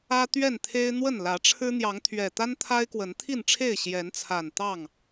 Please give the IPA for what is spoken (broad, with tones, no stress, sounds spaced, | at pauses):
ä˦ t̪ ɥ ɛ˥˨ n t̪ʰ e˦ ɪ̯ n̪ w ə˥˨ n l ä˨˦ ʈ͡ʂʰ ɻ̩˦ n̪ j ɑ˨˦ ŋ t̪ʰ ɥ ɛ˨˩ t̪ a˦ n t̪ʰ a˦ ɪ̯ k w ə˨˦ n t̪ʰ i˥˨ n ʈ͡ʂʰ e˥˨ ɪ̯ ɕ j ɛ˨˦ n t͡sʰ a˨˩ n t̪ ɑ˥˨ ŋ